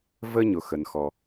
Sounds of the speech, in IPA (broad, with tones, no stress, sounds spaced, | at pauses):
v ə˥ ɲ ʊ˨ x ə˩ n x ɔ˩